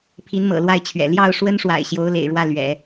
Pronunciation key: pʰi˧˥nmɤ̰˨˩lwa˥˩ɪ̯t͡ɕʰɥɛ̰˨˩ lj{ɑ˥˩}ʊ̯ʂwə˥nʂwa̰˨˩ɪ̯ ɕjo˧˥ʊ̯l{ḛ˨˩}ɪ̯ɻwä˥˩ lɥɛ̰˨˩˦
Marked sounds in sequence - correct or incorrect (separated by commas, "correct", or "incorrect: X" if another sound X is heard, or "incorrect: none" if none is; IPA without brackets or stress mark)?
correct, correct